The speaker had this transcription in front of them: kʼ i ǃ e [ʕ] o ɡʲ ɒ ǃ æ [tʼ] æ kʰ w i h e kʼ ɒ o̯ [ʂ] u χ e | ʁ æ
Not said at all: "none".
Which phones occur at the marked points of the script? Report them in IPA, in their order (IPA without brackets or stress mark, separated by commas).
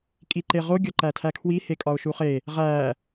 ʁ, tʰ, ʃ